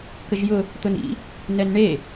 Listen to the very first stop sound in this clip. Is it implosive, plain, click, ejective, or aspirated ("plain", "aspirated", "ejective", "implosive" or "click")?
plain